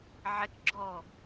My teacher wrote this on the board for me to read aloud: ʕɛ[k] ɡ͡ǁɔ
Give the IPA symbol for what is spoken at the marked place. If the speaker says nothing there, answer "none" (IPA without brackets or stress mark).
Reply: k